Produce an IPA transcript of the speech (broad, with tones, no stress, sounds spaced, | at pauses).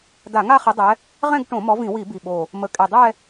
d a˧˩˧ ŋ a˥˧ χ i˨˦ dˤ ɛ˨˦ | ʁ ɛ̃˥˧ ɡ ʈ õ˧˩˧ m ɔ˨˦ v ĩ˧˩˧ w i˧˩˧ b i˨˩ ɓ o˨˩ | m ə˨˦ kʼ e˨˩ dˤ ɛ˥˧